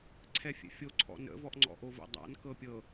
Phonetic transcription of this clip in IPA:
ǀʰ ɛ fʲ ɛ̰ fʲ o ǀʰ ɔ̰ n ə̰ v ɔ ʔ ŋ͡ǀ ɔ̰ ʔ o v ə̰ dˤ a̰ n k ɤ pʲ ɤ

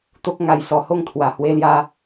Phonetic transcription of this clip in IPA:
t̪ o˦ k̚ ŋ a˥˧ j s ɔ˧ h o˥˧ ŋ t̪ʰ w a˨˩ h w e˧ l j a˧

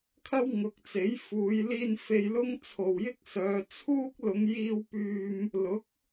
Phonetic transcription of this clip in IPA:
kʰ ɐ˥ w ŋ ʊ˨ k̚ t͡s e˨˥ j f uː˨˧ j l iː˧ n f e˧ j l ʊ˥ ŋ t͡sʰ o˨ w j ɪ˥ k̚ s œː˨˧ t͡sʰ uː˥ k̚ l ʊ˨˧ ŋ j iː˧ w p yː˧ m | l ʊ˨˥ k̚

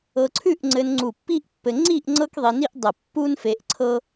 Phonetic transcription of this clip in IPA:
ɤ˧ ǀʰ ʉ˥˧ ʔ ŋ͡ǀ ɘ˧ n ŋ͡ǀ u˧˩ pː i˥ ʔ pː ɘ˧ ŋ͡ǀ i˥˧ ʔ ŋ͡ǀ ɤ˥ k ðˤ i˧ n i˥ ʔ dˤ ə˧˩ pː u˥ n f e˧ ʔ ǀʰ ɤ˥

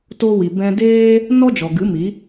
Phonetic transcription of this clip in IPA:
t o˧ w i˨ b ɛ̃˧ d eː˦ | n ɔ˦ d͡ʒ ɔ˨ ɡ ɨ˨˦ m i˨˦

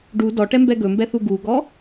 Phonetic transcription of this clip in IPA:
ɖ u d ɔ ʈ ɛ m b ɛ ɡ ɵ m b ɛ θ u ɡ u ɡ ɔ

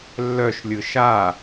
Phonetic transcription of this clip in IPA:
lː œ ʃ lʲ ɯ ʃ a

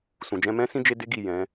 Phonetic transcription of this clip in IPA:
s ũ˨ d͡ʒ ɛ̃˧ m ɛ̃˦ s ĩ˦ d͡ʒ e˦ d e˦ ɡ i˦˨ j ɛ̃˨˦

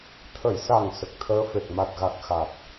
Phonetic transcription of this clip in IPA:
t̪ʰ ə˨˩˨ j s a˨˩ ŋ s ə˨˩ k̚ t̪ʰ əː˧˥ f e˨˩ k̚ m a˨˩ t̚ ɣ a˨˩ k̚ x a˨˩ t̚

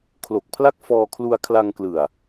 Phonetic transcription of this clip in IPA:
kʰ l o˨˩ k̚ pʰ l a˥˩ k̚ f ɔː˧ kʰ l u˧ a̯ kʰ l a˧ ŋ k l ɯ˨˩ a̯

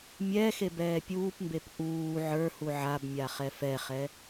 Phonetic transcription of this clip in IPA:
mʲ ɛː x e b ɛː pʲ uː p m b e p ʔ uː ʕ ə˞ h u ʕ a b mʲ a χ ɛ f ɛ χ ɛ

